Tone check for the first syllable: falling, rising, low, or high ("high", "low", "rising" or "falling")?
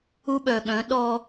high